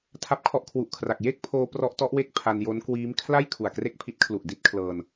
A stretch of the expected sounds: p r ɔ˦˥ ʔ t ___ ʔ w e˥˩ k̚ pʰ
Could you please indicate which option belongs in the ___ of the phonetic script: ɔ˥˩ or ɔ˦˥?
ɔ˦˥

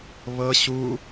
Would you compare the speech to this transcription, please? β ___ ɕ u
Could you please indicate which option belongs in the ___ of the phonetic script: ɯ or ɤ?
ɤ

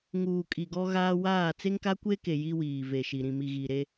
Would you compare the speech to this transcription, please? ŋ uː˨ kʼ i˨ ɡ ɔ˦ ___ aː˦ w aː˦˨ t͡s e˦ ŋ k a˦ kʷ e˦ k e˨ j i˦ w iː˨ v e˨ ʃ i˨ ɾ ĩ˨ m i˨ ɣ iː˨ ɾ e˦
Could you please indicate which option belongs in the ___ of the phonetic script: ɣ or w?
ɣ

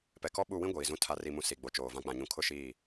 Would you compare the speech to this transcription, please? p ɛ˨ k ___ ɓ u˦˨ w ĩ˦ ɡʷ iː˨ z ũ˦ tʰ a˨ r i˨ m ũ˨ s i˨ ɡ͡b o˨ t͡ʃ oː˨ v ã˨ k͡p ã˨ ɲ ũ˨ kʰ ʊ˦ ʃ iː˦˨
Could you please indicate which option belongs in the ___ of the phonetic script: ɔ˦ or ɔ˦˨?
ɔ˦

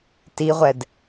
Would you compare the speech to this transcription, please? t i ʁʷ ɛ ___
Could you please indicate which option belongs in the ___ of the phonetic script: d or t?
d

